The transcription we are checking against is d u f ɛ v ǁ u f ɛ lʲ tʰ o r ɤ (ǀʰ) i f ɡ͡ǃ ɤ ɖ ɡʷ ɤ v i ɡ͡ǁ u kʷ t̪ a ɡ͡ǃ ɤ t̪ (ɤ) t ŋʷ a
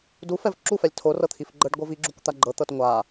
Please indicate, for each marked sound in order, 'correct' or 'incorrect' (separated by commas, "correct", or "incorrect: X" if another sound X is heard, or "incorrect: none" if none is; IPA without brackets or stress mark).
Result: incorrect: t̪ʰ, correct